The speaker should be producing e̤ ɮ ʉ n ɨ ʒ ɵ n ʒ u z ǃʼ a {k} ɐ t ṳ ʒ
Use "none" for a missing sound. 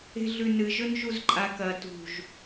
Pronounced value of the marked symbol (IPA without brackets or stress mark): k